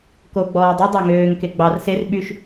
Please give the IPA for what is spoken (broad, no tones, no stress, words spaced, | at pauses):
koɡ͡bɔː dˤœ dˤɑŋøːŋke ɡ͡bɑr ser ɓyʃ